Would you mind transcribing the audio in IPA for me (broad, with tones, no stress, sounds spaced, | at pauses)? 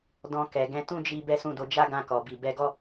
d ɔ̃˧ k ɛ˨ ɡ ɛ̃˨˦ t ũ˦ d͡ʒ i˧ b ɛ˦ s ũ˦˨ d o˧ d͡ʒ a˦ ɡ ã˧ k ɔ˨ b i˨ b ɛ˧ ɡ ɔ˦